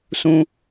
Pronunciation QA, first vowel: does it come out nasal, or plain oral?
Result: nasal